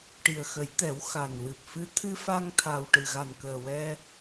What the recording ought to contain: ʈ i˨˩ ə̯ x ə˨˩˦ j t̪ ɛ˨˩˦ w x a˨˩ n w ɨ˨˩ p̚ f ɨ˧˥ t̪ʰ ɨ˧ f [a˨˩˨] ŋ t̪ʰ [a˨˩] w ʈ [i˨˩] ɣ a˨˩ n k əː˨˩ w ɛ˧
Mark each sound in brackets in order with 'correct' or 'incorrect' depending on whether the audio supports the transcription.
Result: incorrect, correct, incorrect

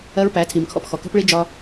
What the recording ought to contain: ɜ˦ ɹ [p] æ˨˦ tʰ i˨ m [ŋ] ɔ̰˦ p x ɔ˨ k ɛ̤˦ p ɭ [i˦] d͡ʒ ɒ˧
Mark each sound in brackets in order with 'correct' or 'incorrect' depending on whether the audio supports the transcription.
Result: correct, incorrect, correct

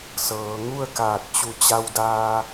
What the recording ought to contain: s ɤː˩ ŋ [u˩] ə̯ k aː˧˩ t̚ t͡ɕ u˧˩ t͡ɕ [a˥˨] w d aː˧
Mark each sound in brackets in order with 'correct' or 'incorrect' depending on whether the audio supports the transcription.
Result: incorrect, incorrect

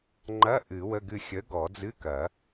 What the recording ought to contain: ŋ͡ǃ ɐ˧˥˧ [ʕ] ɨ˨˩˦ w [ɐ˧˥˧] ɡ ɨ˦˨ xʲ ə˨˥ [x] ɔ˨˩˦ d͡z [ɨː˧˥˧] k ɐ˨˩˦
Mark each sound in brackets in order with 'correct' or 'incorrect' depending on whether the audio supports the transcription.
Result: incorrect, incorrect, incorrect, incorrect

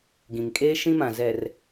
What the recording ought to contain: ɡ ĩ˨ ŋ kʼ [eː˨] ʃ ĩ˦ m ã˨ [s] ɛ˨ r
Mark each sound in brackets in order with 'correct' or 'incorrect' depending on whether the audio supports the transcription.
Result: incorrect, incorrect

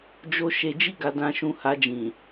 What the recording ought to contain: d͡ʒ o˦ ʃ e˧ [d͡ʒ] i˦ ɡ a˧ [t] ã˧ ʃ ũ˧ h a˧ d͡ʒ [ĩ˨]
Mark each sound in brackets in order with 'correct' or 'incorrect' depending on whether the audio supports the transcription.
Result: correct, incorrect, correct

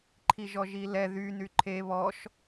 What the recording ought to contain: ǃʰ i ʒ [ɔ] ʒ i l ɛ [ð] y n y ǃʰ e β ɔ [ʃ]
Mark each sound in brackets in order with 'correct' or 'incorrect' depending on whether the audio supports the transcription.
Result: correct, correct, correct

